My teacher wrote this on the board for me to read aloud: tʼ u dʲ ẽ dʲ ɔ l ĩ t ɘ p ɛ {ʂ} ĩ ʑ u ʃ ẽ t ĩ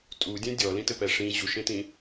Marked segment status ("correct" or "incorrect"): correct